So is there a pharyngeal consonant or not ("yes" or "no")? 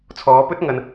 no